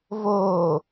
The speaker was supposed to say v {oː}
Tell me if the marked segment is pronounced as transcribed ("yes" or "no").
yes